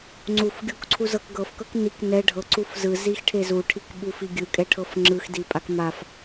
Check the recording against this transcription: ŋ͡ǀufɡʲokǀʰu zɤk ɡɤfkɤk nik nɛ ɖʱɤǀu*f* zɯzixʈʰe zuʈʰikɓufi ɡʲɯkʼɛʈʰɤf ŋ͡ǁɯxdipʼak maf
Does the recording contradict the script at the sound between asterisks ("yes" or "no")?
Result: no